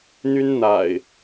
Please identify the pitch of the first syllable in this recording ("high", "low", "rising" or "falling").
high